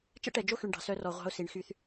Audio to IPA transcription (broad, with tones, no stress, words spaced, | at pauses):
t͡ʃɛ̰˦ʈɛ˨d͡ʒo˦xy˨ɳ ɖɑ̤˨sœ˦rɔ˨ʁʷɑ̤˦ʊ̯ si˨ɳxy˦θ